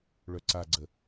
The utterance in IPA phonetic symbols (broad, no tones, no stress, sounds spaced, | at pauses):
ɭ œ ǀ a ɡ͡ǀ ə